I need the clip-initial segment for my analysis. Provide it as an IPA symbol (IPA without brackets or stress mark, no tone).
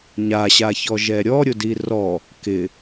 ɲ